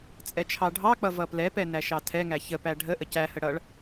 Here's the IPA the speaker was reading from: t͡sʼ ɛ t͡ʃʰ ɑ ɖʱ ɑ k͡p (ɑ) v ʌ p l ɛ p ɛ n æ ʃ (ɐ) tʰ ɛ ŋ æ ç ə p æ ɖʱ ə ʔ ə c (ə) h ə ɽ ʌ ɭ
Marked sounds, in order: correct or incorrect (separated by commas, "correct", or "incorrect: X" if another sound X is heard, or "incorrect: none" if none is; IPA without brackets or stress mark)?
incorrect: ʌ, incorrect: ɑ, incorrect: æ